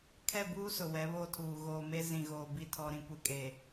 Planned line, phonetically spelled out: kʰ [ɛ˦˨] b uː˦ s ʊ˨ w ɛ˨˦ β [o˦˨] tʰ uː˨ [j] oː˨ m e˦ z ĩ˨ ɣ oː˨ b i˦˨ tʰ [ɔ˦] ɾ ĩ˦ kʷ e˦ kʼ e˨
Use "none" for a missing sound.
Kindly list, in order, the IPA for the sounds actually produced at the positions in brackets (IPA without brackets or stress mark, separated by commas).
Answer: ɛ˦˨, o˦˨, ɣ, ɔ˦